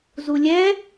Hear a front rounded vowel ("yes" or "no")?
no